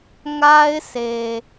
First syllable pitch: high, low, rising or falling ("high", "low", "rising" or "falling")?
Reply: high